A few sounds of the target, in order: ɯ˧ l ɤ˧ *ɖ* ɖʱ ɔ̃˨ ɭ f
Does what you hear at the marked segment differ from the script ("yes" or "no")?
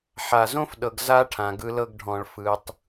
yes